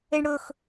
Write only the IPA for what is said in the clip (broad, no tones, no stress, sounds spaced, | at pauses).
e ɳ ɽ ɵ x